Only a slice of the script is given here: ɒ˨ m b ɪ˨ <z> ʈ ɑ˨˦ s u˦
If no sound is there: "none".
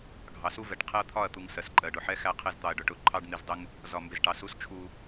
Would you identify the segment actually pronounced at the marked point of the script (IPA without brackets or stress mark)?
z